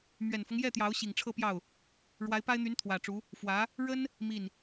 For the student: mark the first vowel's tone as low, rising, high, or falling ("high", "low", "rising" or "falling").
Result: low